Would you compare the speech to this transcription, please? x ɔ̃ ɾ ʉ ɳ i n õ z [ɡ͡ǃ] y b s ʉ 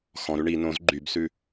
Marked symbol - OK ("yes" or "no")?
yes